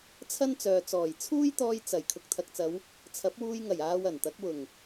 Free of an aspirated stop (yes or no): no